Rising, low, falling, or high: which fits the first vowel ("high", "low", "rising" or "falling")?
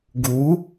rising